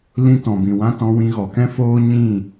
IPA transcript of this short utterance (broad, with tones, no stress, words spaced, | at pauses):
lĩ˦ tɔ̃˨bĩ˨wã˧ tɔ̃˧wĩ˧ɣɔ˨kɛ̃˦ foː˦ɲĩ˦˨